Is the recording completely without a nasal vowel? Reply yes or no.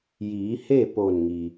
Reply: yes